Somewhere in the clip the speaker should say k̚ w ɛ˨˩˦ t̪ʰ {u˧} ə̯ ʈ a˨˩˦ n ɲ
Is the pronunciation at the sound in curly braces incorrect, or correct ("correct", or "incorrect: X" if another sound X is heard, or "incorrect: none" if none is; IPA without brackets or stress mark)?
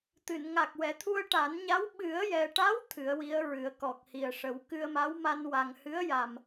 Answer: correct